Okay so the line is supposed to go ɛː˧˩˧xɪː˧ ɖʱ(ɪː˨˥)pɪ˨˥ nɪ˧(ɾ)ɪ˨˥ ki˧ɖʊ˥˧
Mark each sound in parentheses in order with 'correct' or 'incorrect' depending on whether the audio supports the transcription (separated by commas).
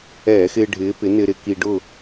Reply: correct, correct